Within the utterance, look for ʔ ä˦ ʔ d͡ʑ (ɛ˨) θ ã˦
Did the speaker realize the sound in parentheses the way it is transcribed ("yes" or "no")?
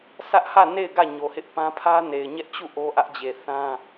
no